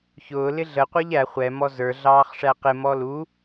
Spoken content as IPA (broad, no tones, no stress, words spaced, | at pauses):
çʊː lɪɮə qʷə˞ʎæ χʷɛ mɔzə˞ ɮɑːχʂæqɪ mɔlu